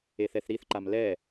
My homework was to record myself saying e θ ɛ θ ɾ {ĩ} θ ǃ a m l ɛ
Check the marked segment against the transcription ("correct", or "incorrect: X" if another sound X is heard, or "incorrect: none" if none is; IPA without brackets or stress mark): incorrect: i